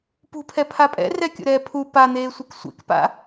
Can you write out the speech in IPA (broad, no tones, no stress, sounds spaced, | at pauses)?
p ṳ pʰ ɛ pʰ a pʼ ɛ̰ r ɛ kʲ o̰ ɾ ɛː pʰ u p a n̪ eː sʷ i k sʷ ḛ k p a̰